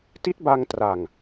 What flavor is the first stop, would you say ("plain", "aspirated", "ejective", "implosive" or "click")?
plain